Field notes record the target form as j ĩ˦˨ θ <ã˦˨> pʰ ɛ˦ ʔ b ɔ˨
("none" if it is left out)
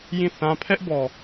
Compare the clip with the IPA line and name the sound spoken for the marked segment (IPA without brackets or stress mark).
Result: ã˦